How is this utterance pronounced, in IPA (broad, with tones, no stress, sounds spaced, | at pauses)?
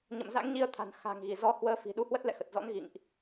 ɲ ə̰˧˨ m z a̰˧˥ ŋ ɲ i˧ ə̯ t̪ʰ a̤˨˩ n x a̤˨˩ ŋ ɣ i˧˩ z ɔ˧ h w əː˨˦ f i̤˨˩ ɗ u˨˦ h w ə˦˥ t̚ l ɛ̰˧˨ x ə˨˩ t̚ z ɔ̰˧˥ n ɣ ḭ˧˨ ŋ ʔ